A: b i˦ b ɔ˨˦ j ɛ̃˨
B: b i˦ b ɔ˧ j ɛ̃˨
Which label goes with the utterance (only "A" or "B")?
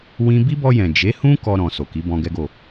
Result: B